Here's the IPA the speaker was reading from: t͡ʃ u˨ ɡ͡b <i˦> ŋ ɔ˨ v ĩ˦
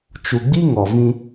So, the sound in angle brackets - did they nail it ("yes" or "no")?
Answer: yes